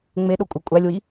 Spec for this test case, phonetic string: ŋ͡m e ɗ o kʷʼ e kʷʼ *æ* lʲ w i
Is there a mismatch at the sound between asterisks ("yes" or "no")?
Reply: no